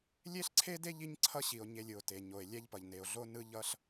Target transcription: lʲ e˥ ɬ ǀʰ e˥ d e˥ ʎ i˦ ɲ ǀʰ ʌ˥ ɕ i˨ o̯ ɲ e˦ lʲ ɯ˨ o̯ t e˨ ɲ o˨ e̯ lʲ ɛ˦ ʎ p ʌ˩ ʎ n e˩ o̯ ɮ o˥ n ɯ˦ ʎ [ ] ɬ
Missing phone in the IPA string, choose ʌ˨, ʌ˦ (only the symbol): ʌ˦